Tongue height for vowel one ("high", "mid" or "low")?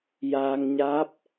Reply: low